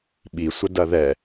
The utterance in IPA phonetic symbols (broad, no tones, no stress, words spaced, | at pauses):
ɓisʷə dɐðɛ